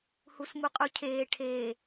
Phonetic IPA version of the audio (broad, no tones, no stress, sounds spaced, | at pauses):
h u s m u qʼ u cʰ eː ʈʰ e